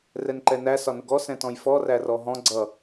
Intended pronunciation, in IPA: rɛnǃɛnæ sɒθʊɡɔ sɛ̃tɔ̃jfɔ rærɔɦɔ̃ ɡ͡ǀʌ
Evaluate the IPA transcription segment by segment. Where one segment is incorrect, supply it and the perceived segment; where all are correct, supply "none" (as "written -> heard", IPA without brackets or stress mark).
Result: θ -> n